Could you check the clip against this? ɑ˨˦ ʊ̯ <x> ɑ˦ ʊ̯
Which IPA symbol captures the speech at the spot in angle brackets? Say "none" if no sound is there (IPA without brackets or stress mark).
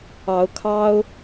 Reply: kʰ